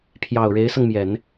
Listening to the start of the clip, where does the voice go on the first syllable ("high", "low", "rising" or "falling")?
low